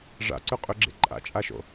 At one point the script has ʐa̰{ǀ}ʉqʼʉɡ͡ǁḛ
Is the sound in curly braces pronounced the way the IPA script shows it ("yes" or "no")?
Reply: yes